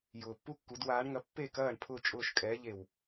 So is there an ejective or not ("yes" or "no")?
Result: yes